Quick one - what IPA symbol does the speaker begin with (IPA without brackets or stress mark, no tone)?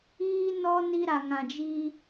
iː